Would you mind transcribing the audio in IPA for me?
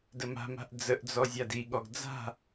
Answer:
dəma̤ma̤ʔ d͡zəʔd͡zɔ zʲadiɠɔɡ d͡za̤

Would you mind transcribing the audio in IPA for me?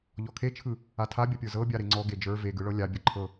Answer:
ʎɔkʰet͡ʃʰɯ | atʰabʲɐpʲə˞ zɤbʲaɾe ŋ͡ǀɔ ɡed͡ʒə˞ veɡɯ ɭɤlʲa bʲɤǃʰɤ

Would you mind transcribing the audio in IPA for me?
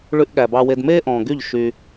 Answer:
ɭʉ˧ʔɠæ˨bɑ˧we˧d meː˦ ʔɔ̃ː˨ɡy˦˨ʎ ʃy˧

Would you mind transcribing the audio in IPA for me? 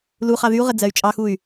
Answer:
luχɑ ðyu̯ʁə d͡zɜy̯t͡ʃʼɑxuy̯

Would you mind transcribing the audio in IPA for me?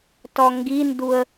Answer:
tɔŋɡinduə̯

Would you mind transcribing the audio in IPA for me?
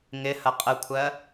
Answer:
ŋɪ hɐqʼəkʷʰɜ

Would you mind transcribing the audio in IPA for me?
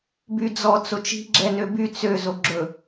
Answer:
byd͡zɔ t͡sot͡ʃi̤ ɡ͡ǁɛnøby t͡sø zoɡ͡ǁɵ

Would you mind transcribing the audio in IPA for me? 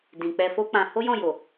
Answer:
dĩ˨ k͡pɛ˧fo˦k͡pã˧ ho˦jɔ̃˦˨jo˨

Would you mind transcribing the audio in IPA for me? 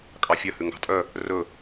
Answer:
kʼɑfʲœ hʉŋɡɑ̤tʼœ | rɵ

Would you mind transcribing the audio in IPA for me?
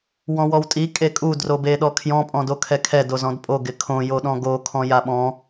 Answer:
wɔ̃wɔwtʼi kʼekʼu drobeɗɔkʰjɔ̃ pʼɔ̃dokʰɛkʰɛ dozɔ̃dpʼo ɡɪkʰõ joɗɔ̃ɡo kʰɔ̃jaɓɔ̃

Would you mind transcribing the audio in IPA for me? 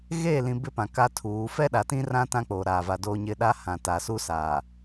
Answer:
ɣeː˦˨lĩ˨ bɪ˦pã˨ ka˦tʰuː˨˦ fɛ˦ɗa˨tĩ˦ rã˦ tã˦k͡poː˨ ɾaː˨va˨ doː˦ɲɪ˦ ɗa˦hã˨ taː˨suː˦ saː˨

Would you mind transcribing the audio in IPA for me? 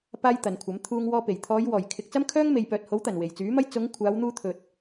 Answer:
paː˥jt̪ɐ˨nkʷʰɐ˨˥m t̪ʰuː˧ŋwɔː˧pe˨˩j t̪ʰɔː˨˧jwɔː˨˩j kʰɪ˧k̚ t͡sɐ˥mkʰœː˥ŋ me˨jpœː˨t̚ho˨˥wt̪ɐ˨˩n we˨˩jt͡syː˨˥mɐ˥j t͡sʊ˨˧ŋ kʷʰaː˨˧wn̪uː˧t̪ʰɵ˨t̚

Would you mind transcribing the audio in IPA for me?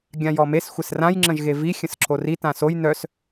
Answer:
ɡʲãjɔmes xʷɪsrãj ŋ͡ǁə̃ʒɣevi xʲə̃sǁori tãsoj nœs

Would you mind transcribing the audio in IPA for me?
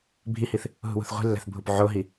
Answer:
bʱihiθ | ɦṳwṳθʁʷi̤lːæ̤θ bʱupʕoɦi

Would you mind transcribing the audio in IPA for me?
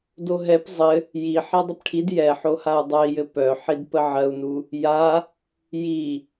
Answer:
doɦɛp zˤɘ | ji ħɛdˤəpʈʰid jɛħohau̯ dˤœi̯jɘ pœ ħidpəʕɜu̯nu | ja | ji

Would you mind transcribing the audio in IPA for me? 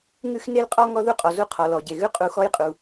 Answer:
ŋʉ˦x ne˦l qʼɔ˦ ŋɔ˦ðu˦qʼɔ˩ zu˦qʰɔ˩lɔ˩ɟe˩ ɣʉ˦ qʼu˨xɔ˦jqʼu˩

